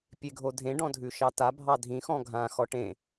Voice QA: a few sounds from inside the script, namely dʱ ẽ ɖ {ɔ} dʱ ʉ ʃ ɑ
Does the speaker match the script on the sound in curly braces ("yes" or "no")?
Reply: no